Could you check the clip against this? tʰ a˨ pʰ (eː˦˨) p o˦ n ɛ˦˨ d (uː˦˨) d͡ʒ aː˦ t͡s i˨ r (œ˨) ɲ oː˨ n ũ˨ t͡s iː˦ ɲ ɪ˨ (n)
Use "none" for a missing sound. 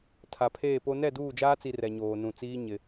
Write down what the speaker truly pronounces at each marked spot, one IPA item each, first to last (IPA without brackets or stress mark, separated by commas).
eː˦˨, uː˦˨, ɛ˨, none